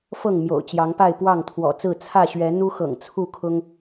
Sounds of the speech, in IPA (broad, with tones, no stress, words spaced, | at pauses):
fɤ˥˨ŋ mjo̰˨˩ʊ̯t͡ɕjɑ˨˦ŋpa˥˨ɪ̯ pwɑ˥˨ŋt̪ʰwɔ̰˨˩ t͡sɹ̩˥˨ t͡sʰä˥˨ɕɥɛ˨˦ n̪u˦xɤ̰˨˩ŋ t͡sʰu˥˨kʰʊ˦ŋ